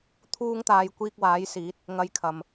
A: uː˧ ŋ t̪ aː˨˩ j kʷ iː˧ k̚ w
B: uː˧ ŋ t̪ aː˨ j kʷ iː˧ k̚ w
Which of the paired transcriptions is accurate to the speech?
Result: B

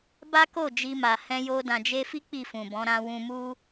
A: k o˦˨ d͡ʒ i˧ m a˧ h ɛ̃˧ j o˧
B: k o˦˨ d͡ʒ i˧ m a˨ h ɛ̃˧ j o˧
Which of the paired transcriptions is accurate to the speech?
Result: B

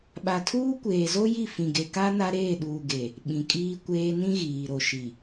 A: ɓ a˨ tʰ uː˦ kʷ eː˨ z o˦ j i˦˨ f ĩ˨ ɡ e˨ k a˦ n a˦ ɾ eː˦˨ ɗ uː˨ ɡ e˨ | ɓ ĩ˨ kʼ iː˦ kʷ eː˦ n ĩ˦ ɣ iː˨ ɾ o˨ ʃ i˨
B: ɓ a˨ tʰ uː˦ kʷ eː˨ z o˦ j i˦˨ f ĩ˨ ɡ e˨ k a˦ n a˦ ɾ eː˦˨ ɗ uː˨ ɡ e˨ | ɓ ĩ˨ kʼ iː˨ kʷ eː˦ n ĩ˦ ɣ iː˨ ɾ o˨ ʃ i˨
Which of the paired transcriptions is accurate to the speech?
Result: A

